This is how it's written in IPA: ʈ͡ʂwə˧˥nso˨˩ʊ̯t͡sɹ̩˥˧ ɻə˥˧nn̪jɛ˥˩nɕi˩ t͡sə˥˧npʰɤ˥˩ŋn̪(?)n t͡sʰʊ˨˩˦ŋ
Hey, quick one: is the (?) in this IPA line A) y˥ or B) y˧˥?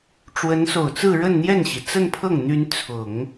B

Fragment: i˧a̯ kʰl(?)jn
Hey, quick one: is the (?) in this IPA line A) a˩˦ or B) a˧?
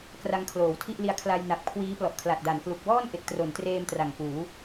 B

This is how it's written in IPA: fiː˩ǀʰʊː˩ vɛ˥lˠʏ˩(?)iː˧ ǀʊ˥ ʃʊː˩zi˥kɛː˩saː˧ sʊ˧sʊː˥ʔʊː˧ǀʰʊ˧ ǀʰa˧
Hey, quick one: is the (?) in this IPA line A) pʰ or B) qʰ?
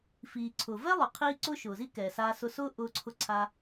B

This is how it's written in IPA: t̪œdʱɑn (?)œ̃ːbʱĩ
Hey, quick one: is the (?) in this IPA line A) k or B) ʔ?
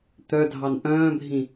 B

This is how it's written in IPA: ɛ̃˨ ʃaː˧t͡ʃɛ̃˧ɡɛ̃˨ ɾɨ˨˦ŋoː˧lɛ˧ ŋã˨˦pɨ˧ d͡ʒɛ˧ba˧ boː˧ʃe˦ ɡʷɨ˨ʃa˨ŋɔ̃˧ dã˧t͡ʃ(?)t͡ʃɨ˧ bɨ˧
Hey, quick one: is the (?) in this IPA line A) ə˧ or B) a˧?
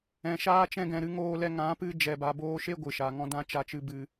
B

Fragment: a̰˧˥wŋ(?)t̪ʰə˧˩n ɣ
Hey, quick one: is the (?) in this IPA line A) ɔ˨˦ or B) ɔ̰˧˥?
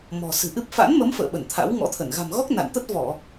B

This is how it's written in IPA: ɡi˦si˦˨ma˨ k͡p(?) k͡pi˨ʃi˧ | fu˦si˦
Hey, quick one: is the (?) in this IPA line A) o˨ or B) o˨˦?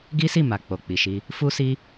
A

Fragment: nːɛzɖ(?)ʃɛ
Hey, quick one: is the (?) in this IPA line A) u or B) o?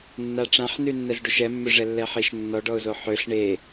A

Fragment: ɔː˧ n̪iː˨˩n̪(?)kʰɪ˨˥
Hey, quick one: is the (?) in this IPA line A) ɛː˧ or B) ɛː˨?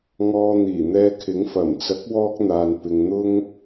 A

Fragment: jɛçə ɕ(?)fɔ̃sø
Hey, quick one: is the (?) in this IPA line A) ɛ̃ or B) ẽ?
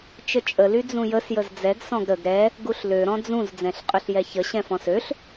A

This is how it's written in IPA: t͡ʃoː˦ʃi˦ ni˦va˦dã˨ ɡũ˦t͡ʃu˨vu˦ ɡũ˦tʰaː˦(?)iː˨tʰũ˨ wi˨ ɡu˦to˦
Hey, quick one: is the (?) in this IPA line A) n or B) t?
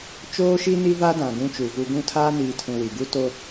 A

